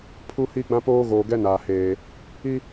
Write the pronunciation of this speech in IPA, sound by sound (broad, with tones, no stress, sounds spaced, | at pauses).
pʰ u˦ h i˦ ɡ͡b ã˦ p oː˦ ɣ oː˨ ɡ ɛ˦ n aː˨ h eː˨ | i˦